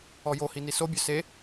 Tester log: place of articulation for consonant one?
palatal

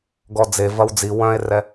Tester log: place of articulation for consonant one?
velar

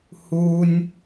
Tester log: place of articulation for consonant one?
glottal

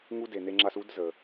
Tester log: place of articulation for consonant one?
velar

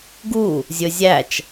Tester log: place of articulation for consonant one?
velar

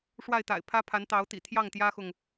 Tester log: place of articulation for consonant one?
retroflex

